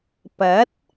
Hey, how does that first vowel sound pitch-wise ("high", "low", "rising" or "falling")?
rising